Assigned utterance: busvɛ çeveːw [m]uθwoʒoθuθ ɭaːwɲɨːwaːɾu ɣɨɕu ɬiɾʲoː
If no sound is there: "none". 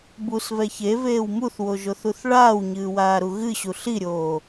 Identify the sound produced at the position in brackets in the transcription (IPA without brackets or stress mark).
m